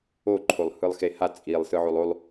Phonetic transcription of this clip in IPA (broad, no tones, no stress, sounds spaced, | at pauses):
o ǃʰ o lˠ h ɯ lˠ x e h a t͡sʼ i lˠ s ɯ ʕ o lˠ o lˠ